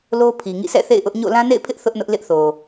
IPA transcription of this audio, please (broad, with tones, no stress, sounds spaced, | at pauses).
l o˦ pʰ i˨ ŋ ḭ˦˨ s ɛ̰˦˨ θ ḛ˦˨ ɪ̯ ʔ ʊ˦ ʔ ɲ o̰˦˨ l ã˦ n ḛ˦˨ ɪ̯ pʰ ɪ˦ ʔ θ ʊ˦ ʔ n ʊ˦ ʔ l ɪ˦ ʔ θ o˨